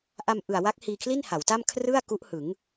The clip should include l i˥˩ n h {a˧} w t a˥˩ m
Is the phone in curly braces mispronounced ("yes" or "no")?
yes